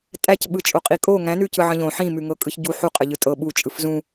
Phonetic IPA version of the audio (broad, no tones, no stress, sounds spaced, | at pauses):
tʼ æ c ɓ ɯ t͡ʃʼ o qʼ i kʼ o ŋ æ̃ n ʉ c ɯ ʕ ə̃ ʎ õ ħ ĩ m ʉ ŋ ɤ kʼ ɯ ç ɟ u ħ u qʼ ə ʎ ɯ tʼ ɤ ɓ u t͡ʃʼ ɯ f z ũ